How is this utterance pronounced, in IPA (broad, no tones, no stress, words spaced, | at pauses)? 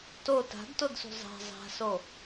to ta̤dtodsṳ zˤa̤ zˤa̤so